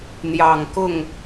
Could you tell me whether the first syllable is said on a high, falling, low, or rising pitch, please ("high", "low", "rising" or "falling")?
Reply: low